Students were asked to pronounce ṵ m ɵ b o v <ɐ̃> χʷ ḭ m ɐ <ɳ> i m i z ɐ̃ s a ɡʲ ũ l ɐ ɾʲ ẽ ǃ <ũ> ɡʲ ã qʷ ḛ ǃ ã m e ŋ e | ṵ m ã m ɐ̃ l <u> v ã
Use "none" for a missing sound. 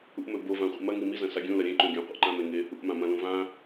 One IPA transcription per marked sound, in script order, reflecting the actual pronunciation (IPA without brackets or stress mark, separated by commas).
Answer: ã, ŋ, ũ, ũ